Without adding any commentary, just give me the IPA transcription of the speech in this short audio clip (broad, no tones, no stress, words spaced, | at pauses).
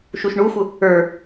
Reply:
ʃuʃɳuxʷə | ə˞